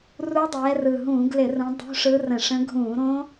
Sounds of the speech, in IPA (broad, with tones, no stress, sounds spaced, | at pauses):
r u˦˥ dˤ ɛː˨˦ r ɯ˨˩ ɦ ũː˧˩˧ ɡ l ɪ˧˩˧ r ũ˨˦ dˤ ṳ˧˥˧ ʂ ɯ˦˥ r ə̃˧˩˧ ʂ ə̃˦˥ ɡʱ ũː˧˩˧ ɾ õ˦˥